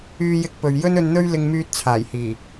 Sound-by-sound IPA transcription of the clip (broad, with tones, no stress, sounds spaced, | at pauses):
yː˧ j ɪ˧ k̚ p ɵ˨ ɥ j ɵ˥ n ɵ˧ n n̪ ɵ˥ ɥ l ɪ˧ ŋ m yː˧ t̚ t͡sʰ aː˨˩ j h iː˨˩